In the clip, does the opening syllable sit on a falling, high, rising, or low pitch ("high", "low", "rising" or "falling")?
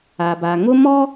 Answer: low